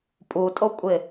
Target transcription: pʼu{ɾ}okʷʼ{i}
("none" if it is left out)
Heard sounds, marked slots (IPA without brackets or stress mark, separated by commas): tʼ, ɪ